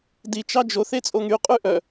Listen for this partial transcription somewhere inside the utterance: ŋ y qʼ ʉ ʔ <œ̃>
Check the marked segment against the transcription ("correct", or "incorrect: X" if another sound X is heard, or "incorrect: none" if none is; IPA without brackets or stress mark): incorrect: œ